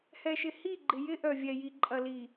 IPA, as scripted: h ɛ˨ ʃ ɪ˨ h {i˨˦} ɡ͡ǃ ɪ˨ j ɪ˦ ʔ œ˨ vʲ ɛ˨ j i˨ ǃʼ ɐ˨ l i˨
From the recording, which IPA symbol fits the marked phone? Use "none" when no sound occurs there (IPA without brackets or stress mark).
i˦˨